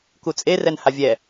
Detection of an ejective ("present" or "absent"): present